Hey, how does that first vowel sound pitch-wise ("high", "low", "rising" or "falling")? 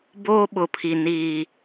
high